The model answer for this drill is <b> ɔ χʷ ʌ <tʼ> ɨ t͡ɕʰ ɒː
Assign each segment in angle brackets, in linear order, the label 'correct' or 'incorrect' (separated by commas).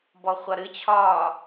correct, incorrect